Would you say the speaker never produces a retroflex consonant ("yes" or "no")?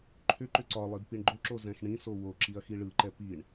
no